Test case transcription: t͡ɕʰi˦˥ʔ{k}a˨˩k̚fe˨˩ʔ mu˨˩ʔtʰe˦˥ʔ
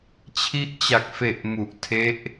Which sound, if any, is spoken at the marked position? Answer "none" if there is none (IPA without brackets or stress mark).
t͡ɕ